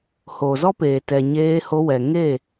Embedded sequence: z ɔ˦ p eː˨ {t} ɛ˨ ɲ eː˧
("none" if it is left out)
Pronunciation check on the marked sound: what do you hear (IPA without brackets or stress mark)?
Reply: t